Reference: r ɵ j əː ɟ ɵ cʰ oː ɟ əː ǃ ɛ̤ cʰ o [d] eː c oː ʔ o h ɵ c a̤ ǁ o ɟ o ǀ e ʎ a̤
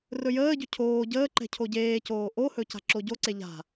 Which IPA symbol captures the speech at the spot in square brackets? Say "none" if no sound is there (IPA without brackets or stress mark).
ɟ